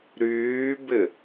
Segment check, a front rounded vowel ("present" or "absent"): present